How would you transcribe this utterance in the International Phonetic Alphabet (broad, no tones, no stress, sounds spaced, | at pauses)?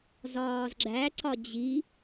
z ɒː z ɡ͡ǁ æ ǀ ɒ d͡ʑ i